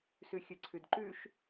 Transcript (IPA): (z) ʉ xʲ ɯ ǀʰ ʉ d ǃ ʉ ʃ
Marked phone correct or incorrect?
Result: incorrect